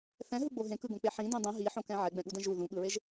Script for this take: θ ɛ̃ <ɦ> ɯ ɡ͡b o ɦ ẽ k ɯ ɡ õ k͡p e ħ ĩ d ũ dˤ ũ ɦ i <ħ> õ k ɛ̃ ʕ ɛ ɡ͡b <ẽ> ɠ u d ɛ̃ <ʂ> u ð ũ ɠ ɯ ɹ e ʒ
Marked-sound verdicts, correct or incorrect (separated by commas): correct, correct, incorrect, incorrect